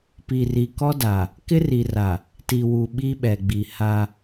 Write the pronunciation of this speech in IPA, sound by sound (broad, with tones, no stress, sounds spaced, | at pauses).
p i˨ r i˨ k ɔ˦ d a˨ | k ɪ˦ r i˨ r a˨ | t i˨ w u˨ ɓ i˦ ɓ ɛ˨ ɡ͡b i˨ h a˦